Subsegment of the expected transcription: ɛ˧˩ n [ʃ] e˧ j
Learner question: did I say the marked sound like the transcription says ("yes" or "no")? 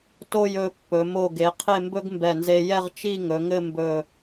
no